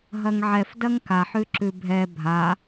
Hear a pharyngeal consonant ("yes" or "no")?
yes